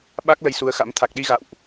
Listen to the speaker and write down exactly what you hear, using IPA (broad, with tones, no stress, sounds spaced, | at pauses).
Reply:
ɓ a˦˥ k̚ l ə˧ j s u˨˦ ə̯ x a̰˧˥ m t̪ʰ a˨˩ k̚ ɗ i˧ ɣ a̰˧˨ w ʔ